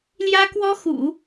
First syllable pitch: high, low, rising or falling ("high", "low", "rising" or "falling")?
high